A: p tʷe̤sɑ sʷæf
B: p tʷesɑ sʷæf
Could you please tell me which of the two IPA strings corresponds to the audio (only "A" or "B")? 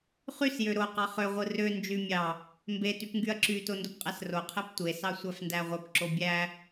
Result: B